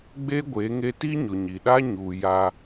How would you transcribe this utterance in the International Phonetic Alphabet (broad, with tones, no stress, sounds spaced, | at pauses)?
ɡ͡b e˦ ɡʷ e˨˦ ŋ e˦ t i˦ ɲ ʊ˨ ɲ i˨ ɗ a˦ ɲ u˨ j a˦